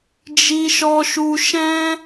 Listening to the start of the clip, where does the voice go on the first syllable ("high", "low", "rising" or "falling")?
high